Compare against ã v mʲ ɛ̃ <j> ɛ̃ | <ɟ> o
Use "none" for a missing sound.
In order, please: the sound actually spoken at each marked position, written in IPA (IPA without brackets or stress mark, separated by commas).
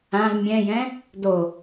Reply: j, d